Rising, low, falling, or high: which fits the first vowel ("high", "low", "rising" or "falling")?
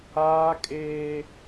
high